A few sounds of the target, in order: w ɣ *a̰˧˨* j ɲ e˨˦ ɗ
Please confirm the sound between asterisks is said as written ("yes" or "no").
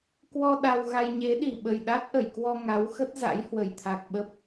no